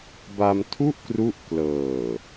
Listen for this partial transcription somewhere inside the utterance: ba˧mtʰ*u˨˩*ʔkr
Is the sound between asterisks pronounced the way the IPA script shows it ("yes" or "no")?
no